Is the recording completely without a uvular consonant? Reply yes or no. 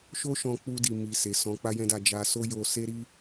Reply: yes